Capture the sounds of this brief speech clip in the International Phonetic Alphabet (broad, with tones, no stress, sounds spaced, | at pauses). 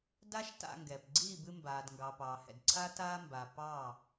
d a˦ ʃ t a̰˧ ŋ ɡ ɛ˨ p ɡ͡ǀ iː˦˨ b ɨ˧ m b aː˨ d ŋ ɡ ɑ˨ p ɑː˨ h ɛ̰˨ d ǀʰ a˦ t aː˦ m b a˨ p ɑː˦˨